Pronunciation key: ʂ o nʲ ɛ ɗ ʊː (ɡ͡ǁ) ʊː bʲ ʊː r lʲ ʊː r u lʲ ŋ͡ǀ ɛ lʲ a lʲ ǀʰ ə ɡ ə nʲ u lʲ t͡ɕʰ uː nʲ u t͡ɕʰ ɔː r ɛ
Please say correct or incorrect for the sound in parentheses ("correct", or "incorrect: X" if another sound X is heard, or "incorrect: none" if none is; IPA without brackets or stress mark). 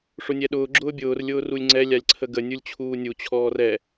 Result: correct